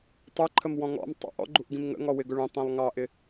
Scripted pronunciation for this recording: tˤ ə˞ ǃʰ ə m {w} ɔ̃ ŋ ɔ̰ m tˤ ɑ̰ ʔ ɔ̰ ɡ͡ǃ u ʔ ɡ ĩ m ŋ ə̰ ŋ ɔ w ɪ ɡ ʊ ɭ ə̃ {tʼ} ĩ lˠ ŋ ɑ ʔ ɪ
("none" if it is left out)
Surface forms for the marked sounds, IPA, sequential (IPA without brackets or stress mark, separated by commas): w, tˤ